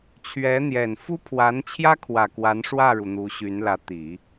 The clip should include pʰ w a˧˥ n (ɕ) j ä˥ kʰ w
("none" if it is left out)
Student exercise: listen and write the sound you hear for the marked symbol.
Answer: t͡ɕʰ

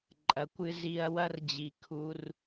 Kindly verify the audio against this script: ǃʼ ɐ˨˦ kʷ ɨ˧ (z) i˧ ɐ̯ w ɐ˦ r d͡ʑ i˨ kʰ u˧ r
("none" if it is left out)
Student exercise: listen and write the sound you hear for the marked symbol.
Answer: z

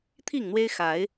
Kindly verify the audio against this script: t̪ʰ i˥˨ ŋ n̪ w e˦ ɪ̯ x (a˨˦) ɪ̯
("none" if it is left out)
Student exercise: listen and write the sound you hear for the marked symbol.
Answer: a˨˦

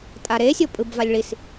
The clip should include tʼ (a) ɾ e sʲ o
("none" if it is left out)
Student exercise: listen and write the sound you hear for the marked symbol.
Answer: a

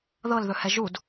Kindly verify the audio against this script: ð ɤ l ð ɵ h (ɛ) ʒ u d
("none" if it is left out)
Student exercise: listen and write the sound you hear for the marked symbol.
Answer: ɛ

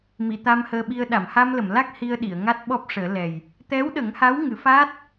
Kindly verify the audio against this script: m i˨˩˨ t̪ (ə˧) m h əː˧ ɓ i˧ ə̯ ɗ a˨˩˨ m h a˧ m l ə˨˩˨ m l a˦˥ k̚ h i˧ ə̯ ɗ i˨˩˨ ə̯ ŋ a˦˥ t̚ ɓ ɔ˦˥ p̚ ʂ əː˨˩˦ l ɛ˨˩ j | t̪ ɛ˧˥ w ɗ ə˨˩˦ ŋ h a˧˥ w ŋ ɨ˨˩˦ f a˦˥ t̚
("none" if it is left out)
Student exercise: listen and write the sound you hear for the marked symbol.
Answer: a˧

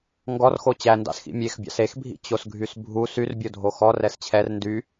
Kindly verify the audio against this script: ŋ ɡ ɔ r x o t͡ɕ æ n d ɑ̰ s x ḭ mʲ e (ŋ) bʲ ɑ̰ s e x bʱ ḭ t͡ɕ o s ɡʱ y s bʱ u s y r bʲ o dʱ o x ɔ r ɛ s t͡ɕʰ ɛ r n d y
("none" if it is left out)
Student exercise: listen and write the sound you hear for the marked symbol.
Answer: x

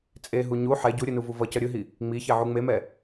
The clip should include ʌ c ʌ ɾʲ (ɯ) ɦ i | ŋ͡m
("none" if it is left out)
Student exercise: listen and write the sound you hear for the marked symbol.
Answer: ɯ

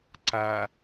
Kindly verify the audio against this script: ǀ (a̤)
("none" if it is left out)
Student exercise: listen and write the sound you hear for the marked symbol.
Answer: a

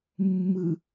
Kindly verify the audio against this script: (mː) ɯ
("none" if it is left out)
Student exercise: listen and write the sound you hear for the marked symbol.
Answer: mː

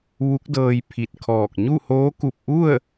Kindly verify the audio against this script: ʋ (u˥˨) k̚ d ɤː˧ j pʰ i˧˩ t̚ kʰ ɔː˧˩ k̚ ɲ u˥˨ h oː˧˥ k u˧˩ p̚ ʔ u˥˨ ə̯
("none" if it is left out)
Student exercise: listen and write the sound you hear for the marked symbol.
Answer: u˧˥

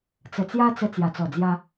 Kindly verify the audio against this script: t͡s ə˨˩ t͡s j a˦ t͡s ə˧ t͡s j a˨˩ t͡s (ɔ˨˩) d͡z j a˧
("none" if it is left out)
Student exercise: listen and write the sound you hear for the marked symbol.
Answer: ɔ˨˩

